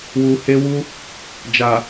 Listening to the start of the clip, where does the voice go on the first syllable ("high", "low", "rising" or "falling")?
low